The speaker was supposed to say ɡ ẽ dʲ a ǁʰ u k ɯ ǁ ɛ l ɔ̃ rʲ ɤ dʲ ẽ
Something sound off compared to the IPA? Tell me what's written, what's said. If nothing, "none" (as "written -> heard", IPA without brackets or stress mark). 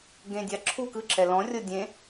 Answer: none